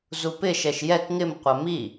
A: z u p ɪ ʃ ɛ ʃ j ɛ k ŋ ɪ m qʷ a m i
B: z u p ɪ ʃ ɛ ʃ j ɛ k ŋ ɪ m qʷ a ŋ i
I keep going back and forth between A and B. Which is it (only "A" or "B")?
A